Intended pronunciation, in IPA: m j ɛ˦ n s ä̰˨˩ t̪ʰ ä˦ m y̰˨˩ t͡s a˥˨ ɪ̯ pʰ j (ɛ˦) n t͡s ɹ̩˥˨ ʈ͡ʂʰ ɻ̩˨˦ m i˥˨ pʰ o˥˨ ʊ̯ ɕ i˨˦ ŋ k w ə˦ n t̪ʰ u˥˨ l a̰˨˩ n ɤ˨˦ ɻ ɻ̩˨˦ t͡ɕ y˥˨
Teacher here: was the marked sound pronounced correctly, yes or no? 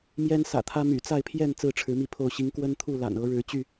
no